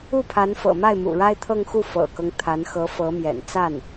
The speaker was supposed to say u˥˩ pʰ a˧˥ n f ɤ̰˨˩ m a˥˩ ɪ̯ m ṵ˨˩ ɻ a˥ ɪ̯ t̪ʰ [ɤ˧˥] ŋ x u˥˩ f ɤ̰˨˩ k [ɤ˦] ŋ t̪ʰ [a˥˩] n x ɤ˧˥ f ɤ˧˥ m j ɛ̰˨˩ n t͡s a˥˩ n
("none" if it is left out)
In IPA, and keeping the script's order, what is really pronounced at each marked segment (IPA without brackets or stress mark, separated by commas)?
ɤ˥˧, ɤ˦, a˧˥